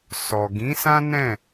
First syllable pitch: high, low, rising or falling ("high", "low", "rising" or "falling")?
low